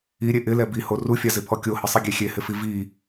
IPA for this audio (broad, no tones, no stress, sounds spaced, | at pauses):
i ɾʲ e ʔ ɪ l ɛ b i h o r u fʲ a z ɪ pʰ ɔ kʲ o h ɪ sˤ i ɡʲ e xʲ e h ɪ f i v i